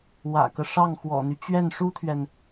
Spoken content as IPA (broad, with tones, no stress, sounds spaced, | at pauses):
w ä̰˨˩ k ɤ˦ ʂ ɑ˥˩ ŋ x w ɔ̰˨˩ n̪ y˦ t͡ɕ ɥ ɛ˥˩ n ʂ u˥ t̪ʰ ɥ ɛ˨ n